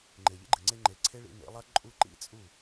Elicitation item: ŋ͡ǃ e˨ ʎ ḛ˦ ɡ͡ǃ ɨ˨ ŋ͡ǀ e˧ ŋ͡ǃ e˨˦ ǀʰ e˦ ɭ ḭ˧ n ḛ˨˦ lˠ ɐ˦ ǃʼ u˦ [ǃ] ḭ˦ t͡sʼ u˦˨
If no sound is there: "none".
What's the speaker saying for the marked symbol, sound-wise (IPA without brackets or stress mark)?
ǃ